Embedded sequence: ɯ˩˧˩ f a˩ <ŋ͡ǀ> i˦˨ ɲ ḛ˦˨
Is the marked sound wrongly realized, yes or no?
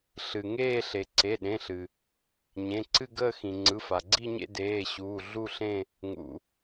yes